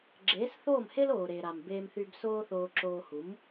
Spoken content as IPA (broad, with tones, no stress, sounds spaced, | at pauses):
ɡ͡ǁ eː˩˥ s θ oː˥˩ m h e˥ l oː˩ ɾ eː˩ ɾ a˩ m b eː˧ m θ y˧ b s oː˥ θ oː˧ ǁ oː˧ h u˩˥ m